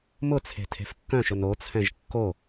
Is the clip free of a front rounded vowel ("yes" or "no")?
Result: no